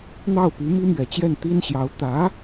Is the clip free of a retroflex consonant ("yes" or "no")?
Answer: yes